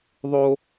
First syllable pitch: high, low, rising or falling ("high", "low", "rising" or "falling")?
high